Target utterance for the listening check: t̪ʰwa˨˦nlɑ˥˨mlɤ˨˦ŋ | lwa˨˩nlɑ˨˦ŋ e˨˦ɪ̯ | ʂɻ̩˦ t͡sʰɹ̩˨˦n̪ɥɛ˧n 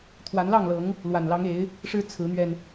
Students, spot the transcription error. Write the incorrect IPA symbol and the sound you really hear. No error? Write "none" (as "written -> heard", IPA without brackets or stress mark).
m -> ŋ